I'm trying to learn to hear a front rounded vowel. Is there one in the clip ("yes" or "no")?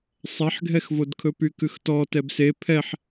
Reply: yes